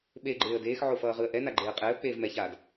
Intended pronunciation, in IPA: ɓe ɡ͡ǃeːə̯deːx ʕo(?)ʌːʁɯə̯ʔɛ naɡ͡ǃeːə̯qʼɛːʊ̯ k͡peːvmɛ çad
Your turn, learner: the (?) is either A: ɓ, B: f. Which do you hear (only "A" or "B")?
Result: B